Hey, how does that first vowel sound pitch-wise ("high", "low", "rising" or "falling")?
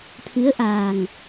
rising